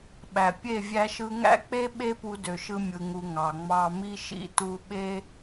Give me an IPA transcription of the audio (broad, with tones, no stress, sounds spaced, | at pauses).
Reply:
ɓ æ˨ pʲ e˦˨ vʲ æ˧ ʃ ɯ˧ ŋ æ̰˦ k͡p e˦ ɓ e˦ p u˧ d ø˨ ʃ ɯ˧ mʲ ɯ˨ ŋ u˨ ŋ ɑ˨ ŋ͡m ɑ˧ m i˧ ʃ ḭ˦ t u˧ ɓ e˧